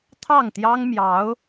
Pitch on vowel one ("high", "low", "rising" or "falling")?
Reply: falling